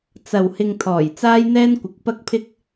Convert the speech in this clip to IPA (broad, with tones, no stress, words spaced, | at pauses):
t͡sɐ˨w hɪ˧ŋt̪ʰɔː˨˩j t͡saː˥jn̪ɛː˥nkʷɪ˨˥k̚ pɐ˥k̚pʰɪ˥k̚